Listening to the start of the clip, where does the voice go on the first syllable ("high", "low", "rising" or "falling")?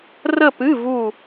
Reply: falling